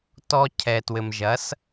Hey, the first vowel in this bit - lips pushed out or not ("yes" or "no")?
yes